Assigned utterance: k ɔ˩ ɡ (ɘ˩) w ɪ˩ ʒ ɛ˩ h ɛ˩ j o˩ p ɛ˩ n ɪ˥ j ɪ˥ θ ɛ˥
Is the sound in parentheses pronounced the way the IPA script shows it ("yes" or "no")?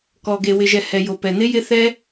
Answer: no